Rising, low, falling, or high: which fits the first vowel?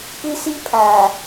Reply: high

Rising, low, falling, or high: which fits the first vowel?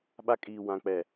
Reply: high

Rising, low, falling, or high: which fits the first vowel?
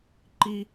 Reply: high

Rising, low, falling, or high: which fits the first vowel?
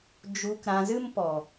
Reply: low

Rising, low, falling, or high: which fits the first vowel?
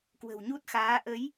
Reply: low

